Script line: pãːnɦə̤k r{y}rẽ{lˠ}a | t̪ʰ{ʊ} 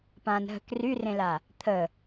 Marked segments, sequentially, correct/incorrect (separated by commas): correct, incorrect, incorrect